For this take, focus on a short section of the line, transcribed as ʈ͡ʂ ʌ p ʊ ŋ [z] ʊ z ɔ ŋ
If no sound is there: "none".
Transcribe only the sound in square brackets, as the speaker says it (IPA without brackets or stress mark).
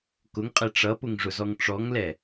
ʐ